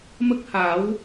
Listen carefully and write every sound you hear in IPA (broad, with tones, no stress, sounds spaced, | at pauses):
m ə˦˥ k̚ h a˨˩˦ w